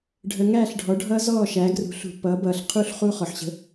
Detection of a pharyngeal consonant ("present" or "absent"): present